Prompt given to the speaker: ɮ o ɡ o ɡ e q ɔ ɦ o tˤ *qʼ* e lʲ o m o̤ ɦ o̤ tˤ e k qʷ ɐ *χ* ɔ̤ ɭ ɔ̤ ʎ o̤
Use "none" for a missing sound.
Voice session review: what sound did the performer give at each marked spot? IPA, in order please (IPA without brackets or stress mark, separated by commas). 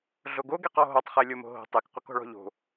χ, k